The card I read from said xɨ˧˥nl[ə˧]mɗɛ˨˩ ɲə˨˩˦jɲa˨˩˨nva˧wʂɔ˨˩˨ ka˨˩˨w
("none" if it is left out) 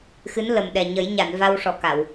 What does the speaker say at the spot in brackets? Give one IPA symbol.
ə˨˩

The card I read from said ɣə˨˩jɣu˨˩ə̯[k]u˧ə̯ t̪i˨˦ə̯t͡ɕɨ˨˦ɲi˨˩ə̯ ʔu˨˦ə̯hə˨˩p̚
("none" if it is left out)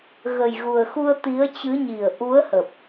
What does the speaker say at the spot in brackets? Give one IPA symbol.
x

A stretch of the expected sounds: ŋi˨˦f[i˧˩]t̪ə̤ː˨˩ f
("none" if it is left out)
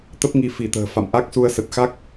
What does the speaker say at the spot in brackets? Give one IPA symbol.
i˧˩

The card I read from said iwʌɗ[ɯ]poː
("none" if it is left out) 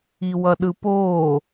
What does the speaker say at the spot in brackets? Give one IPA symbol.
ɯ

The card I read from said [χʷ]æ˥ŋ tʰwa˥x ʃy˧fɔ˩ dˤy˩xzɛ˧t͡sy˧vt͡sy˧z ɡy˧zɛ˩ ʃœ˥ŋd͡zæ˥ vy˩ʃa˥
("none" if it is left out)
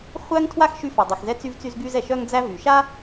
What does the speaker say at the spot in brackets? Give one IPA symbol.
χʷ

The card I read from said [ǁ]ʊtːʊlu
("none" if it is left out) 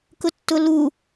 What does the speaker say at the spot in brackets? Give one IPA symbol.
k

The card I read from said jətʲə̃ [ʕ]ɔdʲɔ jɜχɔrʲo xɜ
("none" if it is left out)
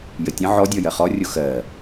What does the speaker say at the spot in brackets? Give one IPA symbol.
ʕ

